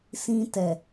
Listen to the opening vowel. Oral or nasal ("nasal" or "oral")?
nasal